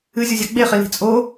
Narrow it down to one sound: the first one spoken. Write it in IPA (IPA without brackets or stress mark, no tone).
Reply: ɨ